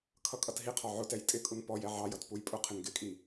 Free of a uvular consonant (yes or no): no